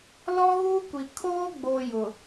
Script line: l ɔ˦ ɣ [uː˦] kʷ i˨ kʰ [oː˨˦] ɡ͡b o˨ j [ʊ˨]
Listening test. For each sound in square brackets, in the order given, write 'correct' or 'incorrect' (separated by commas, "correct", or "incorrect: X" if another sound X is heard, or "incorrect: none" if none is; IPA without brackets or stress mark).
correct, incorrect: oː˦, correct